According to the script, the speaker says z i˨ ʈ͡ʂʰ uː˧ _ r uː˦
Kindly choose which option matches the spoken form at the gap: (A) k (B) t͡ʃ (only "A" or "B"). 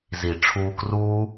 A